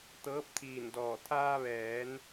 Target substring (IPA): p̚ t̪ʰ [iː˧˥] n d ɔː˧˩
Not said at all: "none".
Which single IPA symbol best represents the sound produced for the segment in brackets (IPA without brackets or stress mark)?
iː˧˩